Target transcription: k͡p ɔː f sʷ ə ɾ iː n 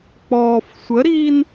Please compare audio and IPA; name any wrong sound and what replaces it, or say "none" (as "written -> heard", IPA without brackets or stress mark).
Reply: none